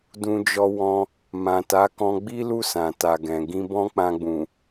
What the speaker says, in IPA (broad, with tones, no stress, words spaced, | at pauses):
dũ˧d͡ʒɔ˧wɔ̃˧ | mã˨ta˨˦ kɔ̃˧ɡ͡bi˦lu˦˨ sã˨ta˨ɡɛ̃˨ ɡĩ˧bɔ̃˦ k͡pã˧ɡ͡bũ˨